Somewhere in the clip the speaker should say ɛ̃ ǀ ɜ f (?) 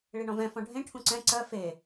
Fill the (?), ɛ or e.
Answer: e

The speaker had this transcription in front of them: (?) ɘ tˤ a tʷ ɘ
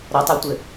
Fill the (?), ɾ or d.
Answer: ɾ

